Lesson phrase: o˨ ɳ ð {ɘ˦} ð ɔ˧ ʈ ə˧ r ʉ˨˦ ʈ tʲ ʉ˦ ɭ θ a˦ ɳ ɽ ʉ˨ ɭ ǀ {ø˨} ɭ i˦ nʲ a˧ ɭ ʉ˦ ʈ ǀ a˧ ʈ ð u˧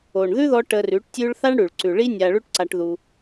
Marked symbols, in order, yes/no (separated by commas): no, no